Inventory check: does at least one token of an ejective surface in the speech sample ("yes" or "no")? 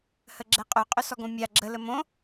yes